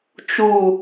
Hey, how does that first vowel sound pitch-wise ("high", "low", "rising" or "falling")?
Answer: falling